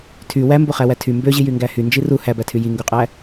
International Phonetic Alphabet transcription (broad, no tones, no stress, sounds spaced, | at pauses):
tʰ y w æ m b o χ æ w æ tʰ y m b ø ʑ i j y ŋ ɡ æ h y n d͡ʒ i r u h æ b æ tʰ y j i ŋ ɡ u qʼ æ